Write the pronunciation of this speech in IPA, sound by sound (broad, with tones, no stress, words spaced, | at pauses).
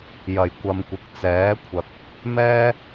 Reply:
jɐ˨˩jkʷɐ˨mkʷɪ˨˥k̚ t͡sɛː˨˥kʷʰɐ˨k̚ | mɛː˥